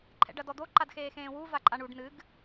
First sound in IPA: ǃʰ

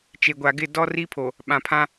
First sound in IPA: t͡ʃ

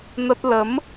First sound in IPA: n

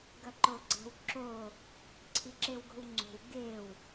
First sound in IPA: ɡ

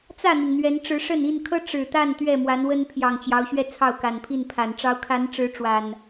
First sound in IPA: t͡s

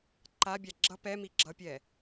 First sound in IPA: ǃ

